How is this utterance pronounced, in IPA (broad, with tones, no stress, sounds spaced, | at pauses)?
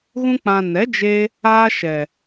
ɣ ũ˦ k͡p ã˧ n ɛ˨˦ d͡ʒ e˧ | aː˦ ʃ ɛ˨